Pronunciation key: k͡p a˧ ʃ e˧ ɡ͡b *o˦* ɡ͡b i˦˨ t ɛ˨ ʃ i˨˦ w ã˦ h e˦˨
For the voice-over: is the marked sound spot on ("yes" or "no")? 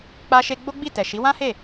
yes